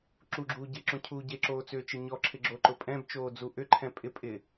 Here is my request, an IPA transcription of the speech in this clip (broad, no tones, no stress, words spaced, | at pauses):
ǁuɡ͡ǁuː ɟɪ ǁõcʰuːɟeǁoː t͡sʏːt͡ʃeɲɔǁʰɪ ɡ͡ǁoǃʊpʼɛ̃bt͡ʃoː d͡zuʔʏǃʰɛ̃ pʼɪ pʼɪ